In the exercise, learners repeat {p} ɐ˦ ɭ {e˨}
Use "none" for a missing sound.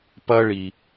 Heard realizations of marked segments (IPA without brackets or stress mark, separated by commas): p, i˨